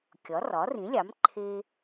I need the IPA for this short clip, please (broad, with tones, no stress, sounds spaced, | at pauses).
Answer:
kʲ ɒ˩˥ r ɒ˩˥ r ĩ˩˥ lʲ ɑ˩˥ m ǃʰ e˦